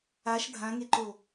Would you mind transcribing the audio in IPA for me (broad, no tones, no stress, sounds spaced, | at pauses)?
a ʃ dʱ ã ŋ e ǃ o